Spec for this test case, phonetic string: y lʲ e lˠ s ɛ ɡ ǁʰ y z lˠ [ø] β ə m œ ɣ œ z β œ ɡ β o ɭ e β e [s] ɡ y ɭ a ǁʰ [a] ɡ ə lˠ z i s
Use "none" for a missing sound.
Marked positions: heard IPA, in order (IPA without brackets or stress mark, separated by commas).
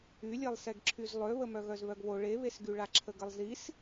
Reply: ø, s, ə